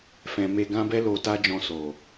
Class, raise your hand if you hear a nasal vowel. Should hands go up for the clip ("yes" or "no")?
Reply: yes